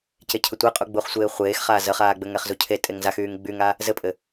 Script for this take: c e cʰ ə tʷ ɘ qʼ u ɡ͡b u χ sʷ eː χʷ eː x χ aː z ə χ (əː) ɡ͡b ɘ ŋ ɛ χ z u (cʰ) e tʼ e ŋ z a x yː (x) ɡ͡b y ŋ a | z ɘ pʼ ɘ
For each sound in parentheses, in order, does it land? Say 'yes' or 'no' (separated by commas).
no, yes, no